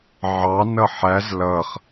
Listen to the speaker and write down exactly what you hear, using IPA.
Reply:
ʕ ɑ n ʌ ħ æ z l ʌ χ

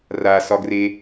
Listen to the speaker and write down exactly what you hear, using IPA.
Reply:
r a s ɒ ɡ r e

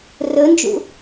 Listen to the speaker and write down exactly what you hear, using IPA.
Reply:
r ɵ n d͡ʒ ṵ

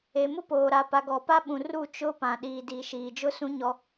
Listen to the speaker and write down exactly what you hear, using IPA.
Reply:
e˨ m ʊ˦ p oː˨ ɾ a˨ p a˨ ɡ ɔ˨ p a˦ ɓ ũ˨ r u˦˨ t͡ʃ ʊ˦ p ã˨ ɗ iː˨ d i˨ ʃ iː˨ d͡ʒ ʊ˦ s ũ˦ ɲ ɔ˦

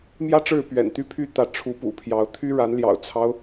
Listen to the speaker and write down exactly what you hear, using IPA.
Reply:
m j ä˥ ʈ͡ʂ ɻ̩˥˩ p ɥ ɛ̰˨˩ n t̪ y˥ pʰ y˥˩ t̪ ä˧˥ ʈ͡ʂʰ u˧˥ p ṵ˨˩ pʰ j ɑ˧˥ ʊ̯ t̪ʰ y˥ ɻ a˧˥ n l j ɑ̰˨˩ ʊ̯ t͡sʰ ɑ˦ ʊ̯

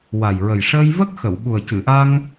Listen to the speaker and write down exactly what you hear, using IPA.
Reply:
w a˨˩ j ɹ ə˨˩ j ʂ əː˧ j v ə˦˥ k̚ x ə˨˩˨ w ɓ u˨˩ ə̯ c ɨ˨˩˨ ʔ a˧ ŋ

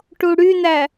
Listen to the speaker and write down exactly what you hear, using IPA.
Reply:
ʈ u ɽ y n æ

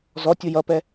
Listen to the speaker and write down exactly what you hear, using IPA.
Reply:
z ɔ tʲ ʊ j ʌ p ɛ

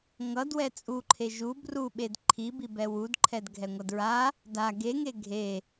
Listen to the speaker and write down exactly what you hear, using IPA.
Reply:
ŋ ʌ d w ɛ t͡sʼ u ǃʰ e ʒ u b r u ɓ e d ǃʰ i b i b ɛ w u d ǃʰ ɛ d ɡʱ ɛ ŋʷ ʌ d ɹ a | d a ɡ e ŋ e ɡʱ e

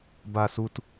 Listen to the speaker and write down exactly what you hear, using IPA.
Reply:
b a˨ s u˨ t

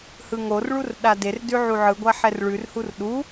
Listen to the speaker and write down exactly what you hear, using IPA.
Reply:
h ɯ ŋ o r ɭ u r ɗ a d e r d ʉ ʕ u ʕ ɯ ɡʷ a ħ ɛ r ɭ ʉ r h u r ɗ u

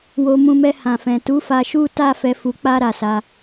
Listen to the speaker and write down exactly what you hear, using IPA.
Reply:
w o˧ m ũ˧ m ɛ˧ h ã˨ f ɛ̃˨ t u˨˦ f a˧ ʃ u˦ t a˦ f ɛ˧ f u˧ k͡p a˧ ɾ a˨ s a˧

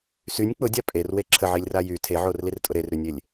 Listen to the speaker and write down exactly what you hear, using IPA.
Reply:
s y nʲ k͡p ʊ dʲ a pʼ e r w e ǁʰ ə ʕ i lʲ r a j y tʰ e ʕ o r l i r tʼ ʊ ɾ e r ɾ y nʲ e lʲ

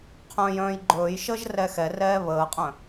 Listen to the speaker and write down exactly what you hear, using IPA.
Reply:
qʰ œ̃ː j œ̃ː j ɡ͡ǃ ɵː j ʃ əː ʒ r ɛ x ɛ r ɛː β əː qʼ œ̃

